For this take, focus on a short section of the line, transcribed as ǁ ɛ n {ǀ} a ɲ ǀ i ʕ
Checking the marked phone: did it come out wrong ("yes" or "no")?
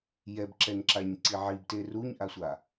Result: yes